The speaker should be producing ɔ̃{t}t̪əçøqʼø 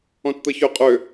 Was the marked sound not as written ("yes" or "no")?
no